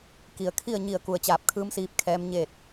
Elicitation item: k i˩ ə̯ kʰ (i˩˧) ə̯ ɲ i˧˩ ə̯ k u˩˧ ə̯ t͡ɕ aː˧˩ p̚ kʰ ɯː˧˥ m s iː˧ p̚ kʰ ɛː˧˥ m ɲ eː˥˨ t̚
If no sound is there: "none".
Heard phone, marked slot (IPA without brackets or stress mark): i˥˨